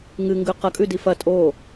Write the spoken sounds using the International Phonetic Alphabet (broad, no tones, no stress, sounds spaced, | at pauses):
ŋ ɨ ŋ ɡ ʉ q ɐ kʼ ʉ d i f ɐ tʼ o